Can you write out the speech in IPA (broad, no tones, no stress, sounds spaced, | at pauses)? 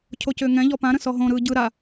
cʰ o c ʏː ŋ ɛ̃ ʎ ɔ p ã ɾ ə̃ s ɔ ɦ õ ɾ ɯː ɟ ɯ ɾ a